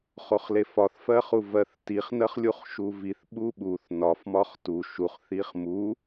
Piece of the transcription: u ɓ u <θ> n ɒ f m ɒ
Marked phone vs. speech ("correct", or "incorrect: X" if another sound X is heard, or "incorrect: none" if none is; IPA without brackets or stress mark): correct